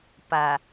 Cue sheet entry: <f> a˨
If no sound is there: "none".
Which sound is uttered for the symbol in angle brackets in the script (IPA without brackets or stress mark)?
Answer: p